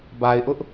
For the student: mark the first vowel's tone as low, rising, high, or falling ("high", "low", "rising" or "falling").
low